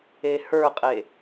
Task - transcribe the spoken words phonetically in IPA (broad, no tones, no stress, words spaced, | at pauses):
ehə˞qʼe